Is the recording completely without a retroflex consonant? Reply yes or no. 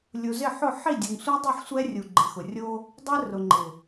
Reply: yes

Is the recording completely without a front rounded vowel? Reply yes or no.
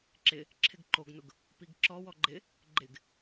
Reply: yes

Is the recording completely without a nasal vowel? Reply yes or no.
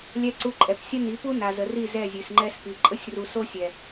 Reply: yes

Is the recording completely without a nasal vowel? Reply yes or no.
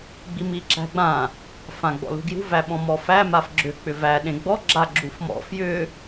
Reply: no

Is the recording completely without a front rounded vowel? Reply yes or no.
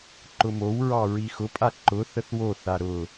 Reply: yes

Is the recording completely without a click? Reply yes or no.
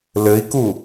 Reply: yes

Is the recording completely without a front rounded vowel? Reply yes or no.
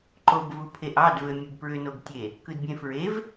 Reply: no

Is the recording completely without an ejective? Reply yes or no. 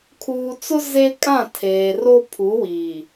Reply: no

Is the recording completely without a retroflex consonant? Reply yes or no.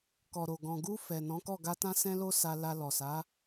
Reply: yes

